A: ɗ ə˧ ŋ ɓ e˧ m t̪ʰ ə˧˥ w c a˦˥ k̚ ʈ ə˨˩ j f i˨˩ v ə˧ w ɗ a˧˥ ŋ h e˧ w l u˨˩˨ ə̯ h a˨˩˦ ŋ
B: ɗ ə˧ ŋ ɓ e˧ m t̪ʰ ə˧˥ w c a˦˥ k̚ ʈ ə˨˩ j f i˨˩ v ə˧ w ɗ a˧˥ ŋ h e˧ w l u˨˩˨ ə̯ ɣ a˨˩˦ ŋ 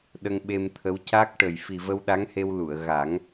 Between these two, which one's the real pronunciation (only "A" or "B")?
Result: B